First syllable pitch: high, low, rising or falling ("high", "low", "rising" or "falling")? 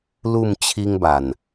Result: falling